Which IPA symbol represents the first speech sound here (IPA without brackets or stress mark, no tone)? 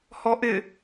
h